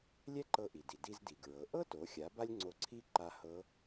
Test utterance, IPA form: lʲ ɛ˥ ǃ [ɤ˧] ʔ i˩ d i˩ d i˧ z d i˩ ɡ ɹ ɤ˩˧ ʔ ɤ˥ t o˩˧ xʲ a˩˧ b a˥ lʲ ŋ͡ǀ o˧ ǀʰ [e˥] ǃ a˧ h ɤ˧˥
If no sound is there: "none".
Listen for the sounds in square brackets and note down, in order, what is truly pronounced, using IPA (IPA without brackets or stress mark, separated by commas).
ɤ˧, i˥